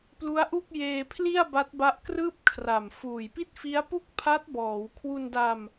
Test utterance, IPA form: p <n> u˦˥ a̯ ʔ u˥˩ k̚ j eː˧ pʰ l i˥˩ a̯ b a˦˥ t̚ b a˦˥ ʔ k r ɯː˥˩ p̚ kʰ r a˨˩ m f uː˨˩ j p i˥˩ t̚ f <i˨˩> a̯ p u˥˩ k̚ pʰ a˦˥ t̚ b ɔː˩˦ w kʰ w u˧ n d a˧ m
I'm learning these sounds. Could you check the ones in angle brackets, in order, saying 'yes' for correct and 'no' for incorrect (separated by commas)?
no, no